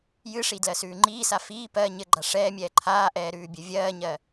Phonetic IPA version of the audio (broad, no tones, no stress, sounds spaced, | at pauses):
j ɨ ʂ i d l ɜ s ʉː ŋ͡ǃ iː s a f iː p ɜ ɲ ɘ ɡ͡ǃ a ʂ ɛː mʲ ɛː ǃʰ aː ʔ ɛː ɾ ʉː bʲ ɘ vʲ ɜː ɲ ɜ